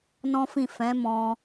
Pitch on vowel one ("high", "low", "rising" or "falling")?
high